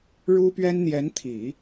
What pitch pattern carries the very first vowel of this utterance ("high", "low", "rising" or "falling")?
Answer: high